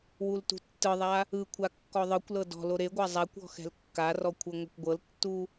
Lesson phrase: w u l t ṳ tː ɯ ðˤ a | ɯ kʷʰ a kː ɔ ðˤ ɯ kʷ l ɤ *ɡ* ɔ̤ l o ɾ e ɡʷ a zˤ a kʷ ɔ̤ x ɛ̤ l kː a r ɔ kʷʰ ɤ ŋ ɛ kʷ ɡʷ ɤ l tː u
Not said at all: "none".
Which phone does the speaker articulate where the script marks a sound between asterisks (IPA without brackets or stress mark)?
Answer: d